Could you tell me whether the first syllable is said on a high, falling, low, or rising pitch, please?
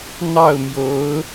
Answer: falling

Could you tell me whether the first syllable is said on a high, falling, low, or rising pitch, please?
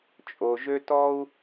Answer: low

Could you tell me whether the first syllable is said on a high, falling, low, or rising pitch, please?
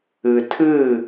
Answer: low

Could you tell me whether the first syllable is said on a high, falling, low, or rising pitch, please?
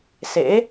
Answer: rising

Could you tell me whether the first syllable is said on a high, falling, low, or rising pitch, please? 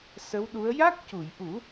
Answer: rising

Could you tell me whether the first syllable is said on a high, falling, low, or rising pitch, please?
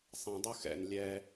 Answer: low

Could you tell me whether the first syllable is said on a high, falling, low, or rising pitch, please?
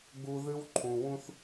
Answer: high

